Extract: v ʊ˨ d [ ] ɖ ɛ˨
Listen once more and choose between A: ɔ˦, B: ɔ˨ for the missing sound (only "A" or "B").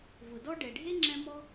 A